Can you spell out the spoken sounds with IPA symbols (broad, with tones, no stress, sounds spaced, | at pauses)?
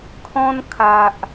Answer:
kʰ ɔ̃˦ n kʰ a˨ ʔ